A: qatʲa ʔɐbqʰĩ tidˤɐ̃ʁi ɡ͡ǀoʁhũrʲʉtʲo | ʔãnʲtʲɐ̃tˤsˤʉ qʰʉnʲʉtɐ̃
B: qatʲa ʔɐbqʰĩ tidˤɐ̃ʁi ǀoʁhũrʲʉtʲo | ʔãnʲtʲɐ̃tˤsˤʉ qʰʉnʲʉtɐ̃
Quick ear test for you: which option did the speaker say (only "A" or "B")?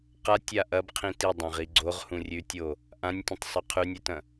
A